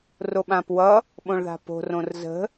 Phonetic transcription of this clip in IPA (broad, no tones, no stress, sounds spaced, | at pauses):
r o ɓ ã p w ʌ | ɓ õ ɭ ð a̤ p o̤ r õ r z ə̤